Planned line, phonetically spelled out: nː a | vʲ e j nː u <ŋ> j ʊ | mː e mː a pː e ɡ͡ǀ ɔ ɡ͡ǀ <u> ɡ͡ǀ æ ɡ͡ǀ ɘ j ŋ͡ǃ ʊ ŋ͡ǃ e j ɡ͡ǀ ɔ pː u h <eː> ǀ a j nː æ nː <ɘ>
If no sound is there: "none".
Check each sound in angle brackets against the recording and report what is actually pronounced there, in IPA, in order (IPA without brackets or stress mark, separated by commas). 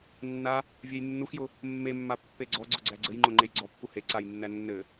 x, ʊ, e, ɘ